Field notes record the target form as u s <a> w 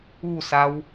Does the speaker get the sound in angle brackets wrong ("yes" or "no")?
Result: no